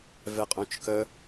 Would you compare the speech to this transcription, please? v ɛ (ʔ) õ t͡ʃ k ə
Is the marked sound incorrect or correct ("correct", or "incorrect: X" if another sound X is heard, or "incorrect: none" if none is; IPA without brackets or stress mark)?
incorrect: qʼ